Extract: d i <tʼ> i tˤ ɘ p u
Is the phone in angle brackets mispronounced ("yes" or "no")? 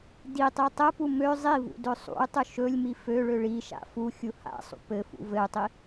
yes